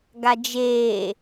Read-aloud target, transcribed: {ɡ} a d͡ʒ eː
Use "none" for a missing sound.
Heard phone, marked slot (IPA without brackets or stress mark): ɡ